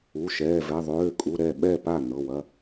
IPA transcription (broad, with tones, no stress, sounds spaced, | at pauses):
u˩˧˩ ʃ ɛː˩˧˩ v ɛ˩˧˩ ðˤ øː˩˧˩ kʼ u˩˧˩ ɾ ɛ˥˩ ɓ ɛ˥˩ p a˥˩ n ɤ˩˧˩ w ɐ˩˧˩